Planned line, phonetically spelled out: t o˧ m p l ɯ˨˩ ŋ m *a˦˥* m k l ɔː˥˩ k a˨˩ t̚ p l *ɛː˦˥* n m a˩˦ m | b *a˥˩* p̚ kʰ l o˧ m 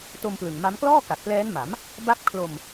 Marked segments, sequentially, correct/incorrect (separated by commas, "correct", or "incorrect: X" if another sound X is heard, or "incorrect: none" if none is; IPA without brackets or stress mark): correct, correct, incorrect: a˦˥